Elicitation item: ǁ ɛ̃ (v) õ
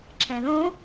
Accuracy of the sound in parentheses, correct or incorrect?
incorrect